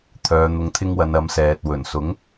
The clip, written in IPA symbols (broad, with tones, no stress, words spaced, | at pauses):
t̪ʰœː˨˧n̪ʊ˧ŋt̪ʰɪ˥ŋwɐ˨˧n ɐ˨˥msɛː˨t̚ wɵ˨˩nsʊ˨˥ŋ